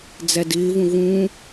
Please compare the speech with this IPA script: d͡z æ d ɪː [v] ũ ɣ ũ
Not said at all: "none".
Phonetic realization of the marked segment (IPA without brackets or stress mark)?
v